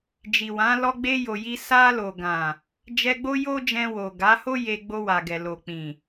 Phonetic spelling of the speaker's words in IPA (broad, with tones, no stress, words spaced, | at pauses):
d͡ʒi˨wã˨˦ lɔ˧ɡ͡be˧jo˨ji˧ sa˧lo˨ɡã˨ | d͡ʒɛ˧ɡ͡bo˦jo˦d͡ʒɛ̃˧ wo˨ɡa˨˦ho˦ je˧ɡ͡bo˧wa˨ɡɛ˨ lo˨k͡pĩ˨